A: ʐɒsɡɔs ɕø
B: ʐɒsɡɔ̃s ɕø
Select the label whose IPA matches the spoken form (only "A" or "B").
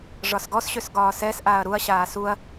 A